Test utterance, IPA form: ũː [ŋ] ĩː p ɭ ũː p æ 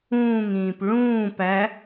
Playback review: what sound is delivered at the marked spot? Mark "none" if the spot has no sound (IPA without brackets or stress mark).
ŋ